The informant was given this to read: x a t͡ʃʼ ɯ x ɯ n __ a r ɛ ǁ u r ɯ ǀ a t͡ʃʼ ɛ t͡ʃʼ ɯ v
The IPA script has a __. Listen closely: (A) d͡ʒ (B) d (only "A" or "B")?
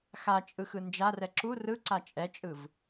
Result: A